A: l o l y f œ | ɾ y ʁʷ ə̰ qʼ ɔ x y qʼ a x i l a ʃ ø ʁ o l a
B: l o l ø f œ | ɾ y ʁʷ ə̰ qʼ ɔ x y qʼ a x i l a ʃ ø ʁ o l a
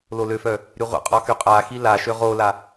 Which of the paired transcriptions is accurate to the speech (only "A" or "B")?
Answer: B